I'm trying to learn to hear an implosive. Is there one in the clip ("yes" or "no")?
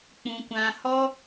no